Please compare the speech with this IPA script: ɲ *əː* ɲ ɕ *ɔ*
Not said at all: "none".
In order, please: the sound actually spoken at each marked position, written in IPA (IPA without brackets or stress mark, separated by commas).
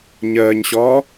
əː, ɔː